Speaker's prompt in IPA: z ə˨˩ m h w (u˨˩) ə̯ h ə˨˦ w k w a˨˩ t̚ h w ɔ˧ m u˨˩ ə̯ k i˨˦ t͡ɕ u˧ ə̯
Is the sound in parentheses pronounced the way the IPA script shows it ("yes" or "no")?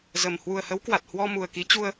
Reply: yes